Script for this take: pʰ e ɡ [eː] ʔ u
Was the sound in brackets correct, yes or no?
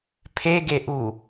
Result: no